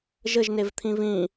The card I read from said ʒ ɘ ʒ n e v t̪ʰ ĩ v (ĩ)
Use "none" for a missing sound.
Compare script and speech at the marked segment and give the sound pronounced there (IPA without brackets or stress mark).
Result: ĩ